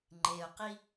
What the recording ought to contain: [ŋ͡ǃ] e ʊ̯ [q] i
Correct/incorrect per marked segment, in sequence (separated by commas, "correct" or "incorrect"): correct, correct